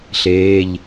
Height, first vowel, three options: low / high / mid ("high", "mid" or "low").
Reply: mid